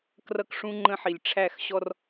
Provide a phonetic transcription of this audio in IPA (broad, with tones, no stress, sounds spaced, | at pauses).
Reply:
k r ʌ˦ k ʂ ũ˦ ŋ͡ǃ ə̃˦ ħ i˨ lʲ ʈ͡ʂʰ æ˦˨ x ɕ ɔ˦ r